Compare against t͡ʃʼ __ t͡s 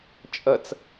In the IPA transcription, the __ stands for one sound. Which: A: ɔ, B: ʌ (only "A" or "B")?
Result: B